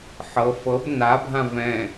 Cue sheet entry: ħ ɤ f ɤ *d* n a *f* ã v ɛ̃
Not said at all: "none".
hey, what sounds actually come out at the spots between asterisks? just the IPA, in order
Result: b, bʱ

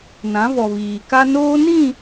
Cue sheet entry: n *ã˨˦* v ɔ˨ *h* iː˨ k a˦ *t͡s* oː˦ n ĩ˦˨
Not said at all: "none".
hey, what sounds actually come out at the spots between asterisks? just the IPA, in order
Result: ã˨˦, β, n

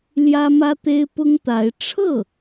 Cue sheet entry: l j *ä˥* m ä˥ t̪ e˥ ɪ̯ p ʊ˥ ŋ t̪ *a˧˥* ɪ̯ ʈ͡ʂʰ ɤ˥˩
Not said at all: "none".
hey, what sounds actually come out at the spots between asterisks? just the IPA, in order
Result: ä˥, a˧˥

